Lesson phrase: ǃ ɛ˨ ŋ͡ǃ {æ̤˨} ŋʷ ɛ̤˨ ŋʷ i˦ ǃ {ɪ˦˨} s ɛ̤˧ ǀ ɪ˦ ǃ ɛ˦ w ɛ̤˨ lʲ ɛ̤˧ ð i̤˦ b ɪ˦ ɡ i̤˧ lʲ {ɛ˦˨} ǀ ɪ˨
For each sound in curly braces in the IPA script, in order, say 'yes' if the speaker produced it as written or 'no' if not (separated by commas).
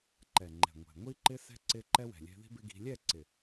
no, no, yes